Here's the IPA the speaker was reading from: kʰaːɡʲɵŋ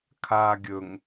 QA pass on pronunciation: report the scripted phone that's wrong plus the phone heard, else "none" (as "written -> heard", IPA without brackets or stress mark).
none